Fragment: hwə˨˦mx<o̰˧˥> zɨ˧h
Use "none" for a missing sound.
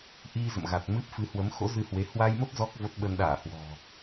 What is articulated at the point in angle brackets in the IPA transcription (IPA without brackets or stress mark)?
o̰˧˥